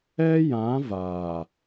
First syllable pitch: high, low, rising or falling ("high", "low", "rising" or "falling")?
high